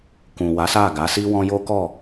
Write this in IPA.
k ũ˨ w a˨˦ s a˦˨ ɡ a˨˦ s i˦ w ɔ̃˦ j o˦ k ɔ˦˨

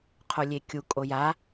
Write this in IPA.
qʰ o lʲ e kʲ u kʼ o j a

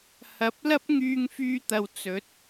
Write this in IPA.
h ɐ˨˥ p̚ l ɐ˥ p̚ ŋ yː˧ ŋ f yː˧ t̪ ɐ˨ w t͡s ɵ˨˥ t̚

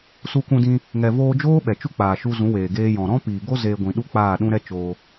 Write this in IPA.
s u˧ k ũ˧ d ĩ˧ | ŋ ɛ˨ v oː˧ d͡ʒ oː˦ ɓ ɛ˨ t͡ʃ u˦ k͡p aː˨ ʃ u˧ z ũ˨˦ w eː˨ ɡ eː˧ j ɔ̃˨ ɾ ɔ̃˦ p iː˨ ɡ o˦ z eː˧ ɡʷ ĩ˨ ɗ u˦ k͡p aː˦˨ ɗ ũ˦ ɾ ɛ˦ t͡ʃ oː˧

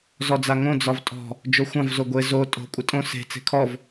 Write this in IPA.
z ɔ d͡z a ŋ õ d͡z ɒ v tʼ ɔ̤ | d͡ʒ o xʷ ã v z o ɡʷ e z o tʼ o̤ kʷʼ ɪ tʼ õ s e̤ t͡s e̤ kʰ ɔ v

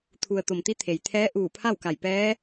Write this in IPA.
t̪ʰ u˩ ə̯ t̪ o˩ m t̪ i˧˥ t̪ʰ e˩ j t̪ʰ ɛː˧˥ ʔ uː˧˩ pʰ a˥˨ w k a˧˩ j p ɛː˧˥

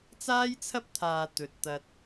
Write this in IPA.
t͡s aː˥ j t͡sʰ ɐ˥ p̚ t̪ʰ aː˨ t̪ ɵ˨ t̚ t̪ ɐ˧ t̚

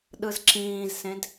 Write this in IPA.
ɗ ɯ z ǁ ĩː z s ẽ d

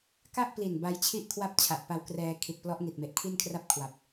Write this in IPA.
k a˥˩ ʔ p l i˨˩ n b a˦˥ j t͡ɕʰ i˥˩ ʔ kʰ w a˥˩ p̚ t͡ɕʰ a˨˩ ʔ p a˧ w k r ɛː˧ kʰ i˨˩ t̚ p l ɔ˦˥ ʔ n i˨˩ t̚ m e˨˩ ʔ kʰ i˥˩ n kʰ r a˥˩ p̚ kʰ w a˨˩ p̚

